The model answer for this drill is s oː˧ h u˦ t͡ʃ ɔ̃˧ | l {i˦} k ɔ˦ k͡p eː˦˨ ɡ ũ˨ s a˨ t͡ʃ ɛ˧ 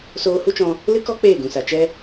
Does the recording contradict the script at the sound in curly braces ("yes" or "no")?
yes